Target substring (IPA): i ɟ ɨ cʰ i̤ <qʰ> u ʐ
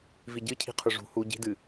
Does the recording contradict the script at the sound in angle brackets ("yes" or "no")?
no